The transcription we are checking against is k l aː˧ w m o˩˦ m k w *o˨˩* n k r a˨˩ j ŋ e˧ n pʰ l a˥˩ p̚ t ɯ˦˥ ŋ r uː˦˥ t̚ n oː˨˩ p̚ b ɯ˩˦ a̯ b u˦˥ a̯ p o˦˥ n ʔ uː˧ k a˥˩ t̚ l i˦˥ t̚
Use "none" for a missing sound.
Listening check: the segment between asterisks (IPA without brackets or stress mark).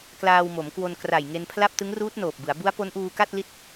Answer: o˧